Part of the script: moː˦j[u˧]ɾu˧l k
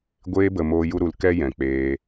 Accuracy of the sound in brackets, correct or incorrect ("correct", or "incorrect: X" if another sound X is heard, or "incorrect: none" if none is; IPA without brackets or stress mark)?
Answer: incorrect: u˦